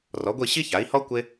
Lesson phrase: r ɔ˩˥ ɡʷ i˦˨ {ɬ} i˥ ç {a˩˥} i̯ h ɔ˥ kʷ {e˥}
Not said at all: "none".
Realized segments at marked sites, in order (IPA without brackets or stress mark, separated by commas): ɕ, a˩˥, e˥